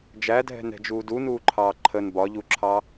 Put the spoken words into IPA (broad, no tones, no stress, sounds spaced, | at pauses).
d͡ʒ æ dʱ ɛ̤ n ɛ̤ d͡ʒ uː d u n uː ǃʰ ɑː ǃʰ ə n b ɒ ʎ u ǁʰ ɑ